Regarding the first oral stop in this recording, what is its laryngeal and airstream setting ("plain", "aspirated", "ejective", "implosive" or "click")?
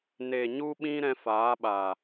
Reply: implosive